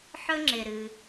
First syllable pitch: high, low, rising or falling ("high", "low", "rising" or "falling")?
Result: high